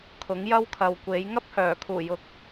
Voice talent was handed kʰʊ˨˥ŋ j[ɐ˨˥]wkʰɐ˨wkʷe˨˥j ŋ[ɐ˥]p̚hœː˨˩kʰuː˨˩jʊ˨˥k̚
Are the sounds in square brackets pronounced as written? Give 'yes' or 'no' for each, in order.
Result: no, yes

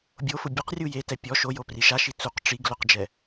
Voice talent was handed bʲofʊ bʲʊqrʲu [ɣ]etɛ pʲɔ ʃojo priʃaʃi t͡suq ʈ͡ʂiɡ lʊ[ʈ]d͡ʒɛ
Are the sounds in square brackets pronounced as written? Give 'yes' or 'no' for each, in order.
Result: no, no

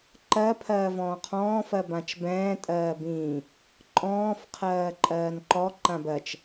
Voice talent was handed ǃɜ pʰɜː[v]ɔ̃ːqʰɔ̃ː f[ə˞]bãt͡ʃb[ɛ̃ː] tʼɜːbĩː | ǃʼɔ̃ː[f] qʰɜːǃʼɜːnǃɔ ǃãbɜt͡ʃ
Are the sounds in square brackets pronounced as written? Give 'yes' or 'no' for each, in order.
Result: yes, no, yes, yes

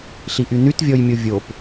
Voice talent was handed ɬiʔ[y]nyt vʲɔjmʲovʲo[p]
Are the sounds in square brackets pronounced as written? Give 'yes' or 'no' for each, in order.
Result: yes, yes

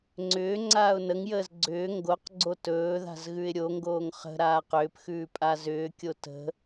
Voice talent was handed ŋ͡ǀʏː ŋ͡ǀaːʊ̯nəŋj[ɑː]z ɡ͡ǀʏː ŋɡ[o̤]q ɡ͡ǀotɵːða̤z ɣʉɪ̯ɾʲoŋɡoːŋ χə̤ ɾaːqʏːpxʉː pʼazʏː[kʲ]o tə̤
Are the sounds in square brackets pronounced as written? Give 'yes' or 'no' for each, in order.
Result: no, no, yes

